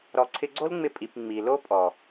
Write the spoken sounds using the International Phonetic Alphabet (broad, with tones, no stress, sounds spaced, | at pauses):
ɾ ɔ˧ ǀʰ ɪ˦ ɡ͡ǀ o˦ l ŋ͡m ɪ˧ pʼ i˨ p ŋ͡m i˨ l o˦ pʼ ɔ˨